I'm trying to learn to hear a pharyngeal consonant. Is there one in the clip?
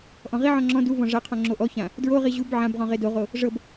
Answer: yes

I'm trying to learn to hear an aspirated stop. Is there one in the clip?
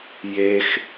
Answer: no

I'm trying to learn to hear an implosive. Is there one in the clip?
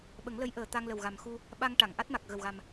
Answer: yes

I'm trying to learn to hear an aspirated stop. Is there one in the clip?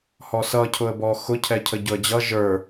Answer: yes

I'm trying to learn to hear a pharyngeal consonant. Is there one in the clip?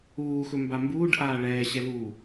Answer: no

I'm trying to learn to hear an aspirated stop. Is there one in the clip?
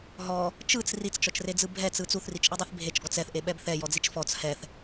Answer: no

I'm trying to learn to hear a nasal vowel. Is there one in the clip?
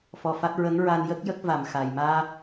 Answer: no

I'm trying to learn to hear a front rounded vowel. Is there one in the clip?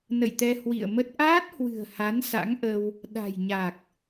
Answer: no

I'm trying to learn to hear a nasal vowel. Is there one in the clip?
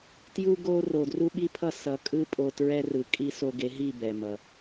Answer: no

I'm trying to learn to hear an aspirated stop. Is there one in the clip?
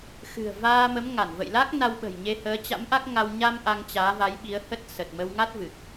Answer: no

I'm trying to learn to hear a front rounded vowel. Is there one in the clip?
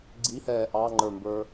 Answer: no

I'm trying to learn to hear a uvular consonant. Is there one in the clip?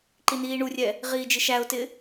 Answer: yes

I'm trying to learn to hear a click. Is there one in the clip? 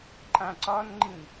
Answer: yes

